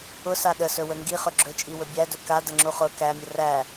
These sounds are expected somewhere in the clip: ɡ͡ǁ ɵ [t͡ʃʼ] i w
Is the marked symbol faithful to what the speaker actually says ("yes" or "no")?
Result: yes